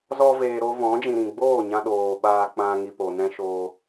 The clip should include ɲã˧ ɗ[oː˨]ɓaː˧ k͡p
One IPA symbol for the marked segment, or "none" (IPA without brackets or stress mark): oː˨